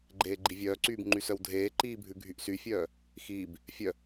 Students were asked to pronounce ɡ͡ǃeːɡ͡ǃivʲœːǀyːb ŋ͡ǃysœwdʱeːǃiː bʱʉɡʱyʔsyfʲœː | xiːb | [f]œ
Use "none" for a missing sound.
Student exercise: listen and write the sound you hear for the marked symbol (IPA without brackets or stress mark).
fʲ